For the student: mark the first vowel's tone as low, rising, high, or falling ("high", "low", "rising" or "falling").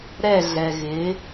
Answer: falling